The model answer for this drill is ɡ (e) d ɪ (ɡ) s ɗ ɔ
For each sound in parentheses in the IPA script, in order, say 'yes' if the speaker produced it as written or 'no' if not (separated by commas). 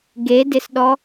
yes, no